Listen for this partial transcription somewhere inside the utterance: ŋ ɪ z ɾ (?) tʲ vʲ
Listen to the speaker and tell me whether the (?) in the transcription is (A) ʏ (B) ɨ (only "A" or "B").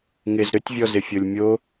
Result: A